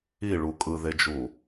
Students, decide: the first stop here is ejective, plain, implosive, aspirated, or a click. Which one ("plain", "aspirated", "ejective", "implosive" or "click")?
ejective